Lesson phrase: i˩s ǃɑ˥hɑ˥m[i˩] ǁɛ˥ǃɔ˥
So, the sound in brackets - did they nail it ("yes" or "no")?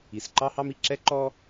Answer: yes